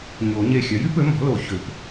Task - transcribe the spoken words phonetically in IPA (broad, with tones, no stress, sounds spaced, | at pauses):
ɲ o˨˩˦ ɲ e˧˩ xʲ œ˩˥ j y˩˥ p ø˩˥ m ɔ̤˩˥ l o˧˩ ç ø˨˩˦ p